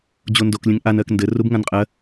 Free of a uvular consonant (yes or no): no